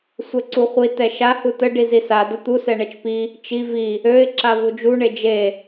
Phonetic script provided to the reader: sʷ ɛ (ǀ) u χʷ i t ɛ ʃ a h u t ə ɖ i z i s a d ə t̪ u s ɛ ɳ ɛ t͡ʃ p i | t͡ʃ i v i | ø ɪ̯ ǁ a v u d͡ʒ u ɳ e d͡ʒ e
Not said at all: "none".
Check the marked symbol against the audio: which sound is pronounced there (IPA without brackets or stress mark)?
ǀ